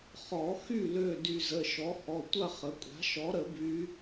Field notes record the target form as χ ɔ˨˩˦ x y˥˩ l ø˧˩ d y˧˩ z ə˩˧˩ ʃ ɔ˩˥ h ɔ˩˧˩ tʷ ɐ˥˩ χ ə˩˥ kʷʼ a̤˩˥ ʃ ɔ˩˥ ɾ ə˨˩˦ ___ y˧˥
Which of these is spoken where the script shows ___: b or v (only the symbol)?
b